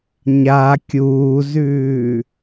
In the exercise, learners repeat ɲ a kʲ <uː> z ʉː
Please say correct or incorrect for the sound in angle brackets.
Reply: correct